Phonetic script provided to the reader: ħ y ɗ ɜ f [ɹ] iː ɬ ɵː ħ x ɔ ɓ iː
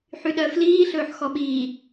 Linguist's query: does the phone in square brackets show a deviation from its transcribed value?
yes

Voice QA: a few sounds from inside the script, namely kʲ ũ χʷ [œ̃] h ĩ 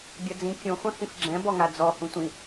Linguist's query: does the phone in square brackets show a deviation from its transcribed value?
no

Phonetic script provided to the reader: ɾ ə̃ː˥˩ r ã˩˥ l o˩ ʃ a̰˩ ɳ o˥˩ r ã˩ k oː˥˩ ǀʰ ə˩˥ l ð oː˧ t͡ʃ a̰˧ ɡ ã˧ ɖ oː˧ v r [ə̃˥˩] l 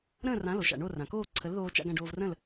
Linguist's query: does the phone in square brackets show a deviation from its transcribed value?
no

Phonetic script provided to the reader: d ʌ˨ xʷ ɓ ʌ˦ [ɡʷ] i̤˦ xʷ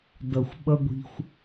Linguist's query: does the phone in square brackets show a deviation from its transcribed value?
no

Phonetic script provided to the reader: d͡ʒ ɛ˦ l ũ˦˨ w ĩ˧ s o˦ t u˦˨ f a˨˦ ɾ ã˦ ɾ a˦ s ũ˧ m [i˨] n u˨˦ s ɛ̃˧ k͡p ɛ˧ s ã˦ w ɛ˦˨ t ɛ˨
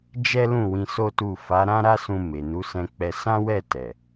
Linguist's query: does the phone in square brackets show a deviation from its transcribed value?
yes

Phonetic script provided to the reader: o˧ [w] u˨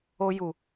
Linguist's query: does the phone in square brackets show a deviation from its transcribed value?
yes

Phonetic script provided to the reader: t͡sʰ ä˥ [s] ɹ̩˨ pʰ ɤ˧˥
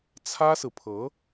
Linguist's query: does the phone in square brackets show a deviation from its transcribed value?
no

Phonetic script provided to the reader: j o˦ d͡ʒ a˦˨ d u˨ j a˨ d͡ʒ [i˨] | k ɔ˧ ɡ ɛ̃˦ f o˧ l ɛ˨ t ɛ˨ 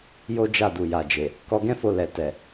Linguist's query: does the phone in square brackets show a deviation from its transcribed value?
yes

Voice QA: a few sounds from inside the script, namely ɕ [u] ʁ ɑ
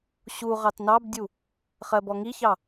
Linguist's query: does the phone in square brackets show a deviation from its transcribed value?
no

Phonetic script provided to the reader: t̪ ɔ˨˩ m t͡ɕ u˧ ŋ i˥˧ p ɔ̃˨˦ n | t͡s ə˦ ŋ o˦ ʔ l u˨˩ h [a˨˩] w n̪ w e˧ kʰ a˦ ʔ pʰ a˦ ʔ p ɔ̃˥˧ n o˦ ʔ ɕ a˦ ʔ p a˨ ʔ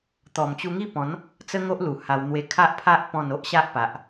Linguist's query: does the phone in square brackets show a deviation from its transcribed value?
yes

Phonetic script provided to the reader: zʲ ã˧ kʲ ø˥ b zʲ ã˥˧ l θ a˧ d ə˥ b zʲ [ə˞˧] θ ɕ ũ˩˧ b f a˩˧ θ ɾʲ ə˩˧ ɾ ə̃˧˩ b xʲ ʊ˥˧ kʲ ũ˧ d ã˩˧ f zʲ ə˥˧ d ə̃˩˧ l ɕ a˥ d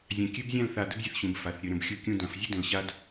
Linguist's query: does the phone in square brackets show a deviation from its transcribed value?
yes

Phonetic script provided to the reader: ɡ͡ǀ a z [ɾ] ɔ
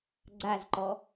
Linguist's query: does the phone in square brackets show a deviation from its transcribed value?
yes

